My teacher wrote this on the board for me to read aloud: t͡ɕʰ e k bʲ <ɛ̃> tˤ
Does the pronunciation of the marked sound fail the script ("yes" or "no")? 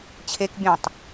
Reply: no